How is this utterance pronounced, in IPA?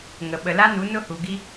ŋ ə˨ ɓ ə˨ l a˦ n u˨˦ n ʊ˦ h u˨ ɡ i˦

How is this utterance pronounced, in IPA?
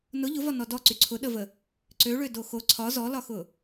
n ʊ ʎ ʊ v ɒ n ɔ d ɔ ǀ y ǀʰ ʊ ɗ ə v ə | ǀ ø ɭ ø d o x o ǀʰ ɒ z ɔ l ɒ x ʊ

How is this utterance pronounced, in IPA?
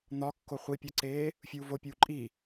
n̪ ɒ kː o χʷ i pʲ ɒ ǀ eː | fʲ uː v o pʲ uː ǃʼ i

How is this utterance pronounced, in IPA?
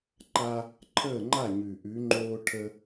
ǃ a˦ | ǃʰ əː˥˨ ŋ͡ǃ a˥˨ ɲ ʉ˨˩ ʔ ʉ˨˦ ŋ͡ǃ oː˦ ʈʰ ə˦

